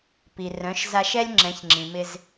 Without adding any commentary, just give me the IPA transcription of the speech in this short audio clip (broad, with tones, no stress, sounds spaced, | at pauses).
p i˨ r œ̃˨˦ ʃ z a˧ ʃ ɛ˦ lʲ ŋ͡ǁ ɛ̃˨˦ ç ŋ͡ǁ ĩ˨ m ɪ˧ z